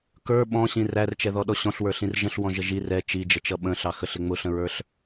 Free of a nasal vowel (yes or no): no